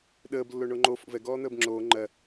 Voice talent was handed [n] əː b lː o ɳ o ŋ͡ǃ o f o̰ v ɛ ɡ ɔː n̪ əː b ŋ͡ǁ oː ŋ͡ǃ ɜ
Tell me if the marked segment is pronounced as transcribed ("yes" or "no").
no